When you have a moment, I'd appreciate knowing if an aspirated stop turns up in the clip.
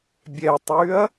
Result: no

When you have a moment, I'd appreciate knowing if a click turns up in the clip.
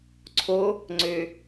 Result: yes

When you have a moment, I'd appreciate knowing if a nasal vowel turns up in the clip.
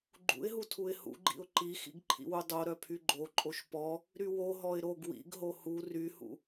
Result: no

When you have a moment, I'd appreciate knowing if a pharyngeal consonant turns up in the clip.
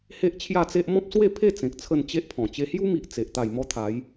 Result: no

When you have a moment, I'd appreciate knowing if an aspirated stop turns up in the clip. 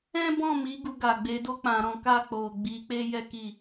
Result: no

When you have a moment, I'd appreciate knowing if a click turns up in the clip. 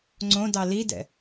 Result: yes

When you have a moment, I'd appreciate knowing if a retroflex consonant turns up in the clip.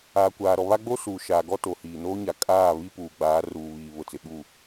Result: no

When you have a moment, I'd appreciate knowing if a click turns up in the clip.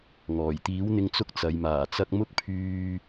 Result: no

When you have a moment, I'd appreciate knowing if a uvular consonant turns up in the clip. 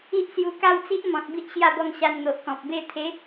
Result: no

